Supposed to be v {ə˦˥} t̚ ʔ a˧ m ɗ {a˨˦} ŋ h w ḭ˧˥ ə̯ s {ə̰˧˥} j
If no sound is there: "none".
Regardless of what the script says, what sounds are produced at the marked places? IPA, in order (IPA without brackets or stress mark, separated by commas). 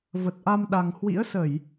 ə˨˩, a˨˩, ə˧˩˨